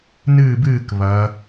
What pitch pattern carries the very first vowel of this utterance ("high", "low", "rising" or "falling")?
falling